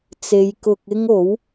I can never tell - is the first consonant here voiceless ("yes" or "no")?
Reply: yes